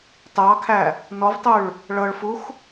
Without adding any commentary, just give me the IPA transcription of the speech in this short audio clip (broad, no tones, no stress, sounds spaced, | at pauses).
t ɑ kʰ æ | n ɔ v tˤ ʉ ɭ | ɭ ɤ ɭ f u x